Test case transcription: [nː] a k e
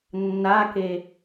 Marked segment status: correct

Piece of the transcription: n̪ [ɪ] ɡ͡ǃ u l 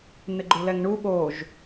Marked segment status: correct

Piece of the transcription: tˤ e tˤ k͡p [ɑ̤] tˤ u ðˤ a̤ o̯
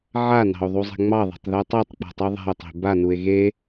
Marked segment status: incorrect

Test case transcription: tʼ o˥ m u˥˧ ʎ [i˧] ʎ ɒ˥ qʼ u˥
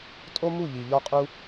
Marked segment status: correct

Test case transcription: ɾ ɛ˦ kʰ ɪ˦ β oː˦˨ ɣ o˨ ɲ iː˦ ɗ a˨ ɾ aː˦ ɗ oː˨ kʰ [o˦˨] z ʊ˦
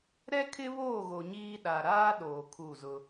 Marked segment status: incorrect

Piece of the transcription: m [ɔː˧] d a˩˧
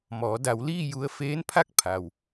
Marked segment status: incorrect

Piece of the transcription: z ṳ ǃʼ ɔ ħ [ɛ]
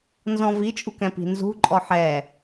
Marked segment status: correct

